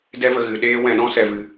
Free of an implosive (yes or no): no